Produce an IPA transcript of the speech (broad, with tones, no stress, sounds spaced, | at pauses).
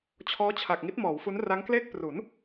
t͡ɕʰ ɔː˦˥ t͡ɕʰ a˨˩ k̚ ŋ i˦˥ t̚ m ɔː˩˦ w f u˦˥ n r a˦˥ ŋ k l eː˥˩ k̚ p r u˩˦ n